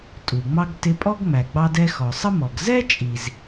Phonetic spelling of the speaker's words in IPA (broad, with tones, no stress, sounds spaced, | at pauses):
tʼ u˩ ŋ͡m ɑ˥ ɡ t ɪ˧ pʼ ɔ˥ ɡ ŋ͡m æ˩ ɡ͡b ɑ˧ d ɛ˧ x ɔ˩ sˤ ə˥ m ɔ˩ ɡ z ɛ˥ t͡ʃʼ i˩ z